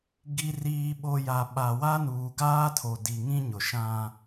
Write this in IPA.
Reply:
ɡ i˨ r iː˨ ɓ o˨ j a˨ ɓ a˨ w a˦ n uː˨ ɡ aː˦ tʰ o˨ d i˨ ŋ ĩ˦ ɲ ʊ˨ ʃ ã˦

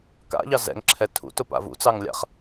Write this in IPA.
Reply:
k a̰ ʎ ɑ z ɛ̰ ŋ ǁʰ ɛ tʰ ṵ t ʊ p a̰ v ṵ t͡s ɑ ŋ lʲ a̰ χ

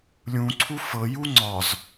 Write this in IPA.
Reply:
lʲ ũ ǀʰ u f ɤ j u ŋ͡ǀ ɒ z

